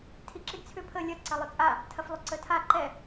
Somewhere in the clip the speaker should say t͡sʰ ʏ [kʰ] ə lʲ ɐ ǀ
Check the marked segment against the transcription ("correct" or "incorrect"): incorrect